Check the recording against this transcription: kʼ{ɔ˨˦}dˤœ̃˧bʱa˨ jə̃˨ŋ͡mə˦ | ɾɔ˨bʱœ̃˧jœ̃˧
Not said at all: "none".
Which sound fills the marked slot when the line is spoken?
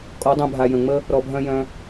ɔ˨˦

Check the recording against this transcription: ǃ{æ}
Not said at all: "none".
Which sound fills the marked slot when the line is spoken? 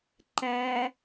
æ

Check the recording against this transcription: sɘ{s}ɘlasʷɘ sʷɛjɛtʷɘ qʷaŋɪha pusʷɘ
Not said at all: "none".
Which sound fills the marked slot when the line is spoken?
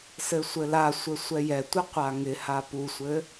sʷ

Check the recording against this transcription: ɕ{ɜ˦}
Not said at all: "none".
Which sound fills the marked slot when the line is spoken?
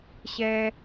ɛ˦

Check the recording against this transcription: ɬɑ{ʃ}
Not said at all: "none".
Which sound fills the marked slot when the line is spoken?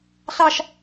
ʃ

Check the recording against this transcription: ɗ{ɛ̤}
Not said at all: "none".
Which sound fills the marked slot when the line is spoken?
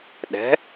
ɛ̤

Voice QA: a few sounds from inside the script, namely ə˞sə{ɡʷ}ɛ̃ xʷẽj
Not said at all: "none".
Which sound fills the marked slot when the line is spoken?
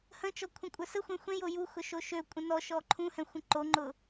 xʷ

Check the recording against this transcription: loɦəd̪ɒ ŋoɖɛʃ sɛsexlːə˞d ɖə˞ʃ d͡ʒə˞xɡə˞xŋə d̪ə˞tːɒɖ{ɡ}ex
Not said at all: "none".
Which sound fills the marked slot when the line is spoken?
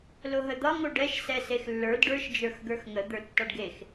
ɡ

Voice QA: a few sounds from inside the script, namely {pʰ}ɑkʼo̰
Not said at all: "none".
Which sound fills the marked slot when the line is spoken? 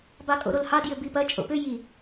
b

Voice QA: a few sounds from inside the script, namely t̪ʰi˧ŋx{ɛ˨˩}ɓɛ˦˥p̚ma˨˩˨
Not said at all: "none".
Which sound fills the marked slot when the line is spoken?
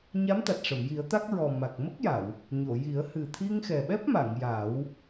ɛ˨˩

